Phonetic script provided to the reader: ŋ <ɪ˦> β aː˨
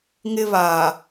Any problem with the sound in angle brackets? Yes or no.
no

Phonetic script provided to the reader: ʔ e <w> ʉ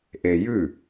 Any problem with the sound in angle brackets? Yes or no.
yes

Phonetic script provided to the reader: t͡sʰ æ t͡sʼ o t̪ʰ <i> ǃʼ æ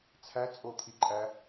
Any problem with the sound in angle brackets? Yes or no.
no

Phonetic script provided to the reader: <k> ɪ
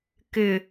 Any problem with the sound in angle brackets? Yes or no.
no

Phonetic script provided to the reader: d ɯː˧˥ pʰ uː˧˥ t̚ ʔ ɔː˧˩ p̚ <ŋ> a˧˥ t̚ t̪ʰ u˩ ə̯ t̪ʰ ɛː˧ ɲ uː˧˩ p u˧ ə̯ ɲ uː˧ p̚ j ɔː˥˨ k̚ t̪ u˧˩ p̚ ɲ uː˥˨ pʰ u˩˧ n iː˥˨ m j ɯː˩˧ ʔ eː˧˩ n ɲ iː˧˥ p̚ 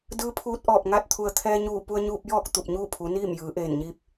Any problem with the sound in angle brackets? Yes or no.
no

